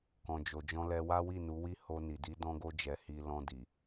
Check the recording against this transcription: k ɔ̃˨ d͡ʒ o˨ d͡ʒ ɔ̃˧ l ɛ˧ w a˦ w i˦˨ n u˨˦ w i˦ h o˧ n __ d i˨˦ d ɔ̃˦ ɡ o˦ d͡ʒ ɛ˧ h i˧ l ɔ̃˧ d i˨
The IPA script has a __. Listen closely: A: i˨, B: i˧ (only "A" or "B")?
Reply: A